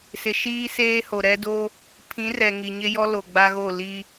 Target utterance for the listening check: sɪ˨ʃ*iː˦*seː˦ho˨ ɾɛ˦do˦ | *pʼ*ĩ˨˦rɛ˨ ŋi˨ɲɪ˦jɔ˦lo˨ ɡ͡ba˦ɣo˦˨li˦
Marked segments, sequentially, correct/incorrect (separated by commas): correct, incorrect